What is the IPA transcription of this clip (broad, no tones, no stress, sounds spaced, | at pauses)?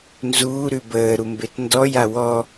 n z uː ɾ ʉ b əː ɾ u m b e t n d ɔ j a w ɔ